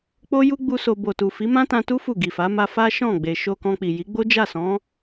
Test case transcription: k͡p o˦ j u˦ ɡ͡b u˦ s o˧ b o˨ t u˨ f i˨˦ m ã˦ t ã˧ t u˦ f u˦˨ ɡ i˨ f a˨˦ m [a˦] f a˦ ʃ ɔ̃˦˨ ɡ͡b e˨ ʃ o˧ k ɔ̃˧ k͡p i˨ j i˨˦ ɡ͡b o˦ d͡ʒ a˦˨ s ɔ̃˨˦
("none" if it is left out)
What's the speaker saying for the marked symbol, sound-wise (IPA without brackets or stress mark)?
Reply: a˦